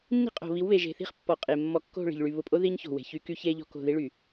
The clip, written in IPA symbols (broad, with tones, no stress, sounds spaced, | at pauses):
nː i̤˦˨ qʼ o̤˨ β i˨˦ w β e˨ ʒ e̤˨ θ i̤˦ χ pː ɔ˨ qʼ e˨ mː ɔ˦ kː o̤˦˨ ɭ i̤˨ ʎ ɭ y˨ β ʊ˨ pʼ o˦ ð i˦ ɲ ç o̤˨ w e̤˨ ç y˦ k y˦ ç e˦ ʎ ɔ̤˦ k o̤˦˨ ð i˦ ɭ y˨